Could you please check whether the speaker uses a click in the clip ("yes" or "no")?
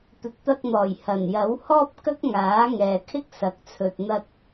no